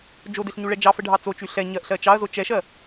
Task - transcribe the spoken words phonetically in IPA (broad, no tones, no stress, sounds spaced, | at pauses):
d͡ʒ o d e ɬ ɲ u ɭ ɛ d͡ʒ ɑ f ə ɖʱ ɑ t͡s o t͡ʃ y ɬ ɛ ɲ ɜ ʔ ɬ ɜ t͡ʃ ɑ ɐ̯ z o t͡ʃ ɛ ʃ ɜ